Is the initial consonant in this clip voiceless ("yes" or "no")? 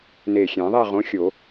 no